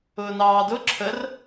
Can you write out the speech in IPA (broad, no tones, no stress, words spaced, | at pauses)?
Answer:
ʊːnɑːdʊ ǁʰər